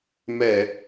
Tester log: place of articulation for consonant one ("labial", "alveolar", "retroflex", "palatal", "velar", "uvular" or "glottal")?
labial